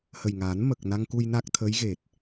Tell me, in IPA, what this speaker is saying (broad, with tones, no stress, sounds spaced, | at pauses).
h ə˨˩ j ŋ aː˨˩˦ n m ə˨˩ k̚ n a˧ ŋ k u˧ j n a˦˥ k̚ t̪ʰ əː˧˥ j ɣ e˨˩ t̚